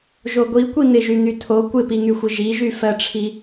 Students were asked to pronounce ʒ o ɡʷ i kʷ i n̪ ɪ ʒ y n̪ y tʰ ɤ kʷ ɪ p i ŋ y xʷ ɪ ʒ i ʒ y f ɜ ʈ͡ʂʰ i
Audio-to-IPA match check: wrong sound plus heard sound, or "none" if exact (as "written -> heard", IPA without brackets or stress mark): ɤ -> o